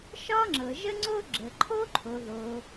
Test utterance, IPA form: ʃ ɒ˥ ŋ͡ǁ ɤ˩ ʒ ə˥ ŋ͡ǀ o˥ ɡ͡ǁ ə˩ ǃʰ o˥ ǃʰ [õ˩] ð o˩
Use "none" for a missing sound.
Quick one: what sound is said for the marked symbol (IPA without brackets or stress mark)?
o˩